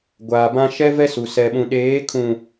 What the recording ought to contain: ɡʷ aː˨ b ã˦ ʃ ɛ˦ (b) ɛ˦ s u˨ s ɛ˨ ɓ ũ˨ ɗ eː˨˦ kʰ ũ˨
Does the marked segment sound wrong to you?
yes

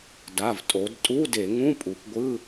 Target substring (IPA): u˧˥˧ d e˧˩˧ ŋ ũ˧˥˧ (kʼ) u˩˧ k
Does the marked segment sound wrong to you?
yes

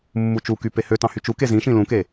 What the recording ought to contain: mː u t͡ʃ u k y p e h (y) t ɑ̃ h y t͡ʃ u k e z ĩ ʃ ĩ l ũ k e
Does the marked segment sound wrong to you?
yes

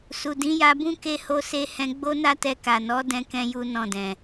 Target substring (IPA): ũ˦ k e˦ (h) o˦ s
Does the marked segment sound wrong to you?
no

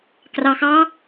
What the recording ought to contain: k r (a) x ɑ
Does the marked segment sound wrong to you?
yes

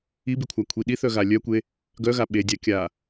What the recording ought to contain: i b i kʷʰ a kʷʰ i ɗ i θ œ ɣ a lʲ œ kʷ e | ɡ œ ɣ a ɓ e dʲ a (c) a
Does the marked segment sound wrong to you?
yes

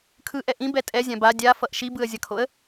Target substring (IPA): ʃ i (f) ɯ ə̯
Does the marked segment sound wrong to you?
yes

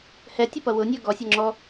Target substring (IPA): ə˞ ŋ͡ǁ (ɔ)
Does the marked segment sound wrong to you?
no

